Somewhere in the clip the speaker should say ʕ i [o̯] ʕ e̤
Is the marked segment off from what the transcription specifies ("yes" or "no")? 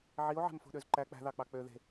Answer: no